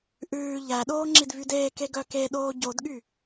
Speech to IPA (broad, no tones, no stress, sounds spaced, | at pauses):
ʔ ʉː ʎ æ ɗ oː ŋ͡ǁ i d v y d eː k e ɡ œ k e ɗ oː ɟ o d ɠ y